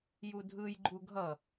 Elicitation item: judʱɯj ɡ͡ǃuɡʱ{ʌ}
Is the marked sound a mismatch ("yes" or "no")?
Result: no